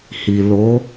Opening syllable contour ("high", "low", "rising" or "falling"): low